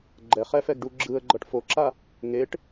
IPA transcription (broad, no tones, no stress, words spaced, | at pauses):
ɡ͡ǃɛχɛfɛɡɖu ɡ͡ǁɯə̯ɡ͡ǃʌʈ foǁa | ŋeʈ